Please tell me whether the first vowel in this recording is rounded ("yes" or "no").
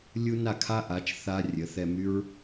yes